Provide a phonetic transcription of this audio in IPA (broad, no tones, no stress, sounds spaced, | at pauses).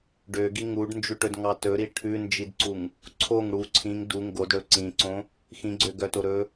ɖ ø ɡ i ŋ u ɖ n d͡ʒ ʉ ʈ ɵ d ŋ ɑ t ɵ ɾ i ʈʰ ʉ n d͡ʒ i d ǀ u ŋ | ǀʰ o ŋ ɽ u ǀʰ ĩ ŋ d u ŋ ɡ o d ɽ ɵ ǀ ĩ ǀ õ | x ĩ ɡ͡ǀ ø ɡ œ t o ɾ ɵ